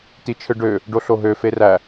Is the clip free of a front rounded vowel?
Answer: no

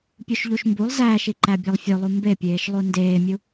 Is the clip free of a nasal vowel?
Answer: yes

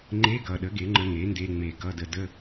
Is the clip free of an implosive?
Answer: no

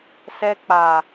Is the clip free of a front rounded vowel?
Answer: yes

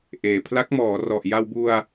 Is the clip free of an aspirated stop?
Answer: no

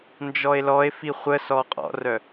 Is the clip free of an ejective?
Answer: no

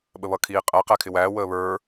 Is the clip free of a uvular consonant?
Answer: no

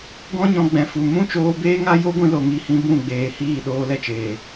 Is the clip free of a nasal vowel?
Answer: no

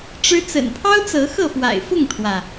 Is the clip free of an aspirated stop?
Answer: no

